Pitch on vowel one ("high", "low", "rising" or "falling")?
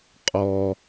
low